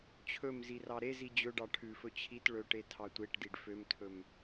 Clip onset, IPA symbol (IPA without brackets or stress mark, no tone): t͡ɕʰ